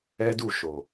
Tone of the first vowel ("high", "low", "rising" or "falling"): high